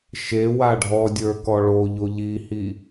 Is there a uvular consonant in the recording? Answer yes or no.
no